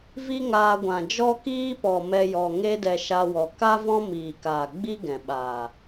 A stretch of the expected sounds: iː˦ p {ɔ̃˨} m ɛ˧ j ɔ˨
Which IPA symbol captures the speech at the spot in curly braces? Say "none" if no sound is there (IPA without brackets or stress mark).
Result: ɔ˨